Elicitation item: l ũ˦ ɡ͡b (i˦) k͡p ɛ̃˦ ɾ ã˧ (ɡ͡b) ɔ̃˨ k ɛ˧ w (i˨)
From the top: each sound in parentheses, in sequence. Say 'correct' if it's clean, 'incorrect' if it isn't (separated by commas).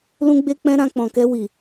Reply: incorrect, incorrect, correct